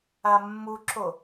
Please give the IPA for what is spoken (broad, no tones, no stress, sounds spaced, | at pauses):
a mː u ǁ o